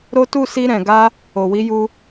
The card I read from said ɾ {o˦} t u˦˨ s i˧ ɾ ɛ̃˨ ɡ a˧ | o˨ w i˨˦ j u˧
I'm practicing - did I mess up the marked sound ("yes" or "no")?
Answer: no